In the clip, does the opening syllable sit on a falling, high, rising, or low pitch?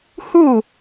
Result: falling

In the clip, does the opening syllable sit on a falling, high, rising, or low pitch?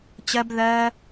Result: high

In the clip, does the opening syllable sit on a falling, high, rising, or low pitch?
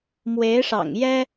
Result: rising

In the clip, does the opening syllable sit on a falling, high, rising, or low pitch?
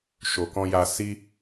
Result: low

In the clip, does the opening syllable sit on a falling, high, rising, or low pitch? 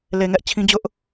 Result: low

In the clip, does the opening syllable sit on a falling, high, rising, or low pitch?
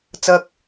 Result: low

